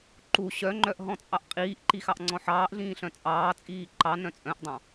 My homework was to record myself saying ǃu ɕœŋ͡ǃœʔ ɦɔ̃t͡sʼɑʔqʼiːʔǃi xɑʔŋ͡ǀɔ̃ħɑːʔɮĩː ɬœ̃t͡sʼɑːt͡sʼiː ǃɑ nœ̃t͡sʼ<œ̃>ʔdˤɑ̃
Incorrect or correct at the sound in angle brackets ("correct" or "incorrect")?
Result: correct